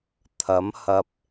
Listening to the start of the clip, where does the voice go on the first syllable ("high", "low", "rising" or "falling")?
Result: rising